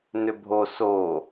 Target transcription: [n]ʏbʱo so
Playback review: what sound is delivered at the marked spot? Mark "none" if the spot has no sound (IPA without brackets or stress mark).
n